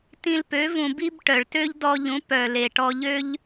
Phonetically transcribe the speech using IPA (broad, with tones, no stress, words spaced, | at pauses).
tĩ˧lpø˨˦ vũ˨bi˧b ʈœ˨ɭtø˦ʎdɔ˧ʎũ˨˦ pœ˨le˨ ʈɔ˧ʎø˦ʎ